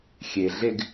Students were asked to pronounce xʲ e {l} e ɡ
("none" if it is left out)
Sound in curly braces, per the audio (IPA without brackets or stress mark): ɮ